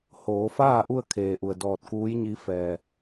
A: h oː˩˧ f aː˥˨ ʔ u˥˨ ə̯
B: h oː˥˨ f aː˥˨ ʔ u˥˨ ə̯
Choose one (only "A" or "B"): A